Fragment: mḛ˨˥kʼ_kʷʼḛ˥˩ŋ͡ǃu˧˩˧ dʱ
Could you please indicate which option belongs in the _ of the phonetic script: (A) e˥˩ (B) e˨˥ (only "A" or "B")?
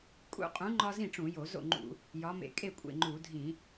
A